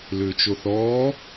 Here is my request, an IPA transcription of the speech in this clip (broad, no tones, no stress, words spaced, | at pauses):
lʏːt͡ʃoθɔː